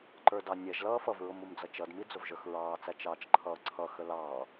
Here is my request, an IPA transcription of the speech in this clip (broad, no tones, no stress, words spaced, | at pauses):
ǃə˞dɑnʲɛʒlʌː fʌvɹʊm umd͡zʌt͡ʃʌdmi d͡zʊvʒə˞xɹɑːt͡sæ t͡ʃɑːt͡ʃǃʰʌːǀʰʌxə lɑː